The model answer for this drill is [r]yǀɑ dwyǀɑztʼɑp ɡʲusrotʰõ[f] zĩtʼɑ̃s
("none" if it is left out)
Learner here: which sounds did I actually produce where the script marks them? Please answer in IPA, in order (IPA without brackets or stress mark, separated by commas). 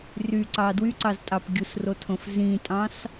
r, f